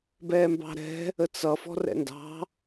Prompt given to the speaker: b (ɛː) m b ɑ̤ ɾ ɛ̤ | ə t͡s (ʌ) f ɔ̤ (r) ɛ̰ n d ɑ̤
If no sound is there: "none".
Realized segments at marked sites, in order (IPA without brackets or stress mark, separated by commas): ɛː, ʌ, r